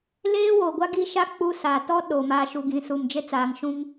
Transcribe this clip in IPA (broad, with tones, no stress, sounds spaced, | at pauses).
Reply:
l eː˦ w oː˨ ɡʷ a˦ ɡ i˦ ʃ a˦ k͡p u˦ s aː˨ t ɔ˦ ɗ o˨ m aː˨ ʃ u˨ ɡ ĩ˨ s u˨ m d͡ʒ e˦ t͡s aː˨ ŋ ʃ ũ˦ ŋ